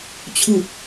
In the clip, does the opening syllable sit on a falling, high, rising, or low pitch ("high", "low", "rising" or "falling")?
falling